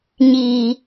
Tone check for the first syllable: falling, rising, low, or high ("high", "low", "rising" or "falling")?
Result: low